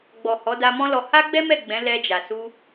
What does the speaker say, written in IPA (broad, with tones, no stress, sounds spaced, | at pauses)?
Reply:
ɡ͡b ɔ˨ h ɔ˨˦ d a˧ m ɔ̃˦ l ɔ˧ h a˦ ɡ͡b ɛ˦ m ɛ˦˨ ɡ͡b ɛ̃˨˦ l ɛ˧ d͡ʒ a˨ s u˧